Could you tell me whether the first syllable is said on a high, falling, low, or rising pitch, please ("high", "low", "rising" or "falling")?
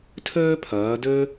high